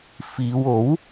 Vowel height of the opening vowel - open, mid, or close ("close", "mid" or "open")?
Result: close